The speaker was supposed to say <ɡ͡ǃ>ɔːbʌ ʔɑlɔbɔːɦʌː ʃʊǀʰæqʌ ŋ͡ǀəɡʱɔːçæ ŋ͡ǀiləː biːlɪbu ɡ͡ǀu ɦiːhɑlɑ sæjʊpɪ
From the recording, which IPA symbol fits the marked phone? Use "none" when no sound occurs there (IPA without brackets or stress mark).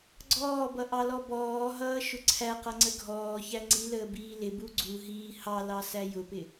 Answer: ɡ͡ǀ